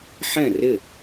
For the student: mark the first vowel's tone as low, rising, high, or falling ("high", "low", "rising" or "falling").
falling